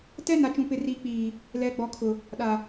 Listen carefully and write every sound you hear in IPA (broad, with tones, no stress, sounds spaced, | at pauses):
t ɛ˦ n a˨ t͡ʃ ũ˨ p ɪ˨ r iː˨ k͡p iː˨ | l ɛ˨ ɡ͡b ɔ˨ kʰ ʊ˨ | ɗ a˨